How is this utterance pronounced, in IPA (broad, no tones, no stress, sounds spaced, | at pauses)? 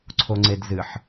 ǀʰ o ŋ͡ǀ e d z ɨ ħ